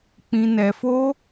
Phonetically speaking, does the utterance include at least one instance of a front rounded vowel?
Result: no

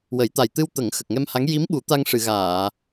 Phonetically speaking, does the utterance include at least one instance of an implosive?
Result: yes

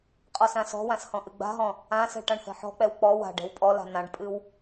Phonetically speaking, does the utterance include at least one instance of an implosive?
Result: no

